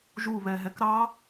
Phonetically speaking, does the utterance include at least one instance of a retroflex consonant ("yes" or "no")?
no